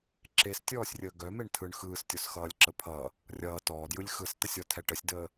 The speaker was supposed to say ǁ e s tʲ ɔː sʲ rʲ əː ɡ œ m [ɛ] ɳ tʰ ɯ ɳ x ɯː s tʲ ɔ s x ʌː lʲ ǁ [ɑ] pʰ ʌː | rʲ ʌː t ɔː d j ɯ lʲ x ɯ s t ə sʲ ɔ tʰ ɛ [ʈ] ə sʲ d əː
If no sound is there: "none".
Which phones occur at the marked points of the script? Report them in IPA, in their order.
e, ə, ʈ

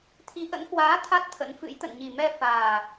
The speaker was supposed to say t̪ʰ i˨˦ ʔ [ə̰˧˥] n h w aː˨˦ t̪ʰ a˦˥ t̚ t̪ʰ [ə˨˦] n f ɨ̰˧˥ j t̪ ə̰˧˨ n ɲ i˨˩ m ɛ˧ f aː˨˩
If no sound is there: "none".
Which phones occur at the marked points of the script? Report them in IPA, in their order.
ə̰˧˥, ə̰˧˥

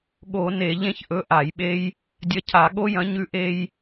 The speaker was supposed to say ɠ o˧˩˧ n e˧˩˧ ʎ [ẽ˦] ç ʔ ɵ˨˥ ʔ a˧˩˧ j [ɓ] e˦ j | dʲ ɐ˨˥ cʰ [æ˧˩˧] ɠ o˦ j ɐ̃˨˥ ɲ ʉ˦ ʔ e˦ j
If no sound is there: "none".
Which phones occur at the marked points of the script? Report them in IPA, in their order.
ẽ˦, ɓ, a˧˩˧

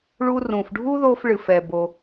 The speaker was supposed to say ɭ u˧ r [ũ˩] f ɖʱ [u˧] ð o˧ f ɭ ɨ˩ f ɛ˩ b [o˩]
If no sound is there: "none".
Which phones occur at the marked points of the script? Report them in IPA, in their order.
ũ˩, u˥, o˩

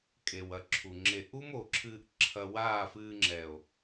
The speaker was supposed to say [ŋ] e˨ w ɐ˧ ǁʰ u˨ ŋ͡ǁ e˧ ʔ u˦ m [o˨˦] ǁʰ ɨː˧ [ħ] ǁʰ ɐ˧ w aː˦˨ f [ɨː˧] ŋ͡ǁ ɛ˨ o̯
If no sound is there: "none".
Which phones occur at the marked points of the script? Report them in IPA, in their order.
kʼ, o˨, ʔ, ɨː˧

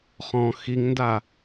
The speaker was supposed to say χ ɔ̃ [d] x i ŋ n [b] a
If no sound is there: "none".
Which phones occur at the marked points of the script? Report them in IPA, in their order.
none, d

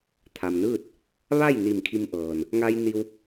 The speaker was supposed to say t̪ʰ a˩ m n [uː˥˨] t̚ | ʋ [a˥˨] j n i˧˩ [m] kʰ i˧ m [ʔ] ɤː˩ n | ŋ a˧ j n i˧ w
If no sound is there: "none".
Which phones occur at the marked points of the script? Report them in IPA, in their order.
ɯː˥˨, a˥˨, m, ʔ

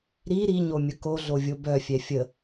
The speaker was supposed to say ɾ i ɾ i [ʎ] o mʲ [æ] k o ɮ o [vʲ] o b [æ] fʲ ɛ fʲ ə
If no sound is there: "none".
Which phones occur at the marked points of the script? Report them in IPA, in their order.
ɲ, ə, vʲ, œ

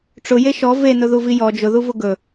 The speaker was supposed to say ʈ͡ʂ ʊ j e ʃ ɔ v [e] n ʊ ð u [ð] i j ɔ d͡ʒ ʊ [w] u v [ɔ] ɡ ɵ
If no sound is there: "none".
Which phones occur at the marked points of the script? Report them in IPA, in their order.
e, v, ð, ʊ

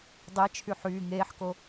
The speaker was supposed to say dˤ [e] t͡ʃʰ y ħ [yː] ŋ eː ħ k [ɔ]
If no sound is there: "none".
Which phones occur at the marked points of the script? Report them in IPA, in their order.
e, yː, o

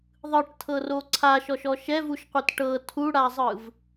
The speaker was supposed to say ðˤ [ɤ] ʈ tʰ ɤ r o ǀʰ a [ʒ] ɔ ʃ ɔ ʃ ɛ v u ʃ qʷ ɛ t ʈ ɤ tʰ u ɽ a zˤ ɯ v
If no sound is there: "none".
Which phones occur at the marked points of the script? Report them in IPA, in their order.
ɯ, ʃ

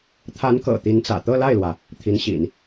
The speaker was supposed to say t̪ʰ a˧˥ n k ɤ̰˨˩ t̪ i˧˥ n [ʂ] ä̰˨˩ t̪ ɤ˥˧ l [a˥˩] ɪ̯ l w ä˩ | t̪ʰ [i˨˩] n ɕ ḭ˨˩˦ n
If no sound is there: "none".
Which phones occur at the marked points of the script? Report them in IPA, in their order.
t͡s, a˥˩, i˧˥

